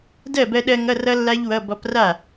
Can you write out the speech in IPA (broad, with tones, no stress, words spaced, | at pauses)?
dɜ˥˩bɜ˧ɗɜ˧ ŋʌ˧˥˧rʌ˦˥lːa˦˥ʎ wʌ˧˥˧ bɔ˧pra˥˩